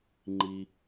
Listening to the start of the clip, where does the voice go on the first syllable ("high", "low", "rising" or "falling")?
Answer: high